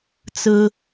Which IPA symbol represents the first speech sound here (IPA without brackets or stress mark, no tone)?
t͡s